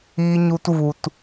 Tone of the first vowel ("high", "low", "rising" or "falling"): low